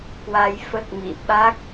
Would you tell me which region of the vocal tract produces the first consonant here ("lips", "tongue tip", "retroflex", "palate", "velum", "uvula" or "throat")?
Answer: velum